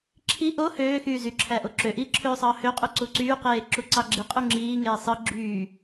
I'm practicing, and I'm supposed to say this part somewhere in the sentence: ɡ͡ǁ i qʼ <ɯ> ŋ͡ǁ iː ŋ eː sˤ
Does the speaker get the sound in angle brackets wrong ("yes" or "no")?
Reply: yes